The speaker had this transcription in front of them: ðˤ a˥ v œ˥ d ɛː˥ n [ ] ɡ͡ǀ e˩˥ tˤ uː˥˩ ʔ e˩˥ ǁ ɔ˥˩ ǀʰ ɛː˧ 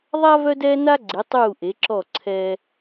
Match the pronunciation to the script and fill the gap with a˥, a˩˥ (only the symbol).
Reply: a˥